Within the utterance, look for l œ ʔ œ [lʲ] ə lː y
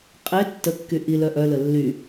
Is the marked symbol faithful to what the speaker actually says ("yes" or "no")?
no